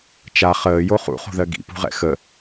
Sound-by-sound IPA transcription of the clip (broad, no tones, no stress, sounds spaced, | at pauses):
t͡ʃ a χ əː j o χ ṵ χ o̤ ð ɜ ɡ ḭ p ṳ ʁ ɛ̰ x ə